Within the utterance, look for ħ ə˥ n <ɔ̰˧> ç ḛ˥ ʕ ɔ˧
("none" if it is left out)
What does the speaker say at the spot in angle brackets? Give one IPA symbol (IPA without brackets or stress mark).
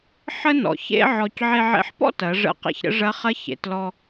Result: ɔ̰˩˧